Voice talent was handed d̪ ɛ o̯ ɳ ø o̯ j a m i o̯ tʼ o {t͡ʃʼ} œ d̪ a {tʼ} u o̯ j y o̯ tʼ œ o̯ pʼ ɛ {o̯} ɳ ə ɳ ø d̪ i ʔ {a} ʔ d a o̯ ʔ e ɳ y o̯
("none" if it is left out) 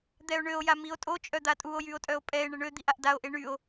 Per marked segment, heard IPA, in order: t͡ʃʼ, tʼ, e̯, a

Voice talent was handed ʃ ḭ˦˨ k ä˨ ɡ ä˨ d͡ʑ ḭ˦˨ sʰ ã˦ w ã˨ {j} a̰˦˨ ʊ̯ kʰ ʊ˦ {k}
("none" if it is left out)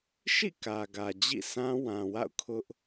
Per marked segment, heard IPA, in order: w, ʔ

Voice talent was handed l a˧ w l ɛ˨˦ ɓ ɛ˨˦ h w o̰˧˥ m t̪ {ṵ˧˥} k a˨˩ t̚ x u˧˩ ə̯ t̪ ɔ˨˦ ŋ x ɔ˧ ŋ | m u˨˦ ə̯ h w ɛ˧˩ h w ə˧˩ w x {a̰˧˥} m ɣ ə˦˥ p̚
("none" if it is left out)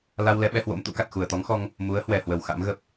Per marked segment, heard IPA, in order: ṵ˧˥, a̰˧˥

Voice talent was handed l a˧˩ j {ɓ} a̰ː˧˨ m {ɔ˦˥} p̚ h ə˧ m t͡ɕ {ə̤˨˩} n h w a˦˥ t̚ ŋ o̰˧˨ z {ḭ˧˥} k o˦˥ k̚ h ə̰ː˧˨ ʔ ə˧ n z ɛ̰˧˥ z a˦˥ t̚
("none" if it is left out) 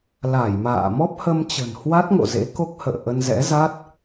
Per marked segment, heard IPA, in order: m, ɔ˦˥, ə̤˨˩, ḛ˧˥

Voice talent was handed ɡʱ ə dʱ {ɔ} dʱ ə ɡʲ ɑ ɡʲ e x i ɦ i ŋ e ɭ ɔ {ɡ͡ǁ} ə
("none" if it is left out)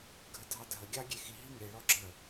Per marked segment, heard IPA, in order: ɑ, ɡ͡ǁ

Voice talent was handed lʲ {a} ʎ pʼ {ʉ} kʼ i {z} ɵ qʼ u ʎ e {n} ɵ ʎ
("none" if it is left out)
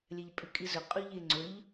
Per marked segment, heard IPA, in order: a, ʉ, z, ŋ͡ǀ

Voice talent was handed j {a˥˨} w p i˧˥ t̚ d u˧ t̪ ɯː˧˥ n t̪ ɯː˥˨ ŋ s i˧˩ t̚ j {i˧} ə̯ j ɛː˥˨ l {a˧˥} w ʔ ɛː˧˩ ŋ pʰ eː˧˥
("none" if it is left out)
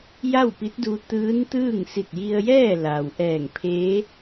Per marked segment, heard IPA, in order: a˥˨, i˧, a˩

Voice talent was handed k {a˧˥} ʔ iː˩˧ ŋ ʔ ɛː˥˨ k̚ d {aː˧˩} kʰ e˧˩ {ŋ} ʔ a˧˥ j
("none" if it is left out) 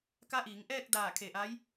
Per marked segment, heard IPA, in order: a˧˥, aː˧˩, none

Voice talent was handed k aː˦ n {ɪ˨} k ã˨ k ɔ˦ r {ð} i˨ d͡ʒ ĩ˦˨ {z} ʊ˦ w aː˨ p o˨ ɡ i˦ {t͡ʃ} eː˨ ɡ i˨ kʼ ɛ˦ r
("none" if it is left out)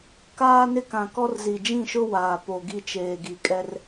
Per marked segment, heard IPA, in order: ɪ˦, z, ʃ, t͡ʃ

